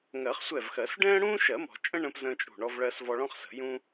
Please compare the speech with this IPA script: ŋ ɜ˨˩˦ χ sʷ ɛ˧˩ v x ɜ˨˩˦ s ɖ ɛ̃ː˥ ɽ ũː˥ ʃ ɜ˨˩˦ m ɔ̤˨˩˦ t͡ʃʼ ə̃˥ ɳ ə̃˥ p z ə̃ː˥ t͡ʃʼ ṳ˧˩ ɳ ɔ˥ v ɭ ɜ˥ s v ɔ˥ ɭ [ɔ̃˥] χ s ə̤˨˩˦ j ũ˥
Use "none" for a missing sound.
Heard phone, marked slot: ɔ̃˥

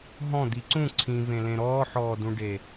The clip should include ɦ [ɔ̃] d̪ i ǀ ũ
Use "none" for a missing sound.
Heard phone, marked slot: ɔ̃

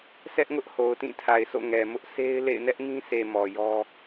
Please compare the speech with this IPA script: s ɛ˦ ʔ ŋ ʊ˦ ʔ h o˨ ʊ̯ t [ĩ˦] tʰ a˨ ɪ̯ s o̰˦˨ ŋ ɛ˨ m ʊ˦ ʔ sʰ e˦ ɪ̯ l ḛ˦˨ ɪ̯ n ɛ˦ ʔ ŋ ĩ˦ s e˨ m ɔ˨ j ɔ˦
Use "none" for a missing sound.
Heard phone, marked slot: ĩ˦˨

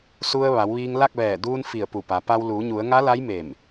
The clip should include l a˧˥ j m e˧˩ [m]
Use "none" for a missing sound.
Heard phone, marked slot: m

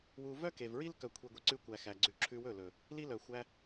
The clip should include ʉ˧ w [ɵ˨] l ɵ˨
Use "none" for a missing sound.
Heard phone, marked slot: ɵ˦˨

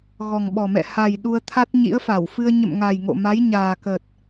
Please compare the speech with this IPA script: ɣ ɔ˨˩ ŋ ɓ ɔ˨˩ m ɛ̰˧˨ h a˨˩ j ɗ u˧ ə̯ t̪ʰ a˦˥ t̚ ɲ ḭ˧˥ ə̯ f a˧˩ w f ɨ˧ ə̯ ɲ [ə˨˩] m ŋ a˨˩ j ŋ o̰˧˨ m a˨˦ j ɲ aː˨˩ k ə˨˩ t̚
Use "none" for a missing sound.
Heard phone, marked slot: ə̰˧˨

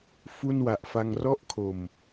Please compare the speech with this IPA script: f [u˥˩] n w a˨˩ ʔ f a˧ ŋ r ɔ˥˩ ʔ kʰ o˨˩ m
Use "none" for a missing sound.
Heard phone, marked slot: u˥˩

